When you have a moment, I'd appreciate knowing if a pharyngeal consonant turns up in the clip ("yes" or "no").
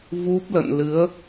no